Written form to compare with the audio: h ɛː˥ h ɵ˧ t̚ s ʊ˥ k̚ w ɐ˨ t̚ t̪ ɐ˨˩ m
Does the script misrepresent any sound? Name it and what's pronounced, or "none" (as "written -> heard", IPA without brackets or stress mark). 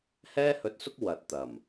none